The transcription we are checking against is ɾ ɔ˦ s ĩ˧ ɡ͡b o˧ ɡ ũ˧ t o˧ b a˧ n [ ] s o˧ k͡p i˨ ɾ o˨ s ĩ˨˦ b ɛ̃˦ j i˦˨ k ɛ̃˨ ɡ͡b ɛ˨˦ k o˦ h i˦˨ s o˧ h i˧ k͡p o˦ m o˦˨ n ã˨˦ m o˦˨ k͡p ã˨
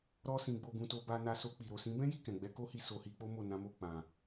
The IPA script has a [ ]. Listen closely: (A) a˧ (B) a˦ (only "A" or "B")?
A